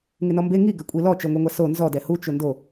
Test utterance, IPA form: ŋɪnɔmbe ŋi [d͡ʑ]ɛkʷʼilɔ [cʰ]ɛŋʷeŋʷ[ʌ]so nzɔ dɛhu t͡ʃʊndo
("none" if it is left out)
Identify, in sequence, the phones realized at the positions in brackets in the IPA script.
ɡ, t͡ʃ, a

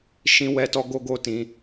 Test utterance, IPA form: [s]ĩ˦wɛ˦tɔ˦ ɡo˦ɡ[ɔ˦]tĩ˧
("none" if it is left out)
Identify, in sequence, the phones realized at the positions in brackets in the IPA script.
ʃ, o˦

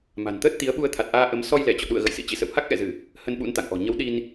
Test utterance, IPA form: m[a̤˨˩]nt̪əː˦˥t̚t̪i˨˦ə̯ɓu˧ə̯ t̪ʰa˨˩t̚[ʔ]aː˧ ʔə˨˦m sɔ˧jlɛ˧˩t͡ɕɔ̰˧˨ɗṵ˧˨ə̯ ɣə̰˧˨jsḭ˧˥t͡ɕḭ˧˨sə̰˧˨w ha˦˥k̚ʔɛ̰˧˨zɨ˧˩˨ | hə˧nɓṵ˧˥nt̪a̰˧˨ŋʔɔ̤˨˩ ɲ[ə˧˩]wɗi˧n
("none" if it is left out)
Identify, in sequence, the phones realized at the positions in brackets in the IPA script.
a̤˨˩, ʔ, ə˨˦

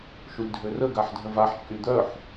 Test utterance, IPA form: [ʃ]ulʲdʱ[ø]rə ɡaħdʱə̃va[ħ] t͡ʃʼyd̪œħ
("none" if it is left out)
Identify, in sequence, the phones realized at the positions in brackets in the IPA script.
ʃ, ø, ħ

